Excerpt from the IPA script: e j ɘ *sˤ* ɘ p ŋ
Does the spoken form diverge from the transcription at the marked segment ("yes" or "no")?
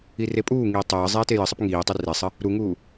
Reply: no